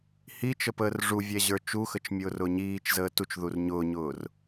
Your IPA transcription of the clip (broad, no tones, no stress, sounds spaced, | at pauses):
h i t͡ʃ ə p əː r ʐ u vʲ ɛ ʑ ə˞ t͡ʃ u x ə t͡ʃ mʲ ʊː r ʊː ɲ iː t͡ʃ z əː t u t͡ʃ ð u r ɲ ʊː ɲ ʊː r